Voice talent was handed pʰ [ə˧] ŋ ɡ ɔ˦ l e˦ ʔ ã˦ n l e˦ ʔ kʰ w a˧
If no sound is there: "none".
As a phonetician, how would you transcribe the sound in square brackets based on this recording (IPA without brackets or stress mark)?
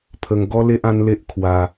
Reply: ə˧